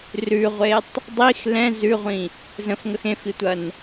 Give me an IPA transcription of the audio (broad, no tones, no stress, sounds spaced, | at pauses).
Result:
r ʉ ʁʷ e tˤ | dˤ i x l ɛ̃ z ʉ ʁʷ ĩ | z ə̃ f ŋ ə x ẽ f i tʷ ɐ n